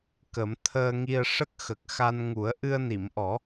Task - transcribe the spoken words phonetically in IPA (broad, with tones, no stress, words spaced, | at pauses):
kə˨˩˦m t̪ʰəː˧ŋi˧ə̯ ʂə˦˥k̚xə˨˩k̚xa˧nŋu˨˩˦ə̯ ʔɨ˧ə̯ni˨˩˨mʔɔ˨˩˦